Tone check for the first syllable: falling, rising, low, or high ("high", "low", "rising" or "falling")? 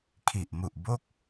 low